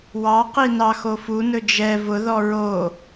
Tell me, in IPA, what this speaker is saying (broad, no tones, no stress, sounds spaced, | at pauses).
w ɑ q i n ɑ x o f u n ɵ d͡ʒ ɛ v ʊ ð ɔ ɹ o